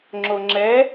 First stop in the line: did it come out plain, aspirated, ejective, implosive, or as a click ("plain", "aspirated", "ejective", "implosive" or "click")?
click